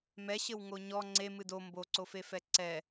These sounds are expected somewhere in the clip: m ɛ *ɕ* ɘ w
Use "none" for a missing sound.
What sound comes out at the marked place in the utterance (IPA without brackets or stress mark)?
ɕ